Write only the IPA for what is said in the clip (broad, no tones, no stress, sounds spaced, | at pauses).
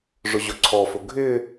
ʐ ʊ ʑ ʊ ǀʰ ɔ f ʊ ɡʱ ɪ